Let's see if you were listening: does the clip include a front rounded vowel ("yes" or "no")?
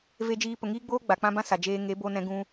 no